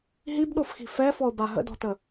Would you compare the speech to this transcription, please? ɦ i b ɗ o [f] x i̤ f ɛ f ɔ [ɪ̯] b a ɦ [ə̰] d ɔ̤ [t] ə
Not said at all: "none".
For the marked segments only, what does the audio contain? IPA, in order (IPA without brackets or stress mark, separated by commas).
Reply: f, ʊ̯, ə̰, t